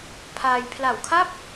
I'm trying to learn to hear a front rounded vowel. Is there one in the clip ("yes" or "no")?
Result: no